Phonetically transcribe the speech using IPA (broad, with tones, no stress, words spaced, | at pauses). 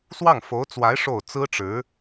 swɑ˥˩ŋfo˧˥ʊ̯t͡swa˧˥ɪ̯ ʂo˥˩ʊ̯ t͡sɹ̩˥ʈ͡ʂɻ̩˧˥